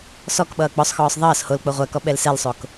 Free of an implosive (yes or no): no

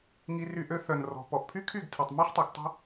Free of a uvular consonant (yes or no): no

